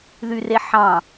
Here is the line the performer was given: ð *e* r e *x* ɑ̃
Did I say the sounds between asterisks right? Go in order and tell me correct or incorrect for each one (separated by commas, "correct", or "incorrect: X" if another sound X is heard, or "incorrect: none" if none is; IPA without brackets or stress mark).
incorrect: y, incorrect: ħ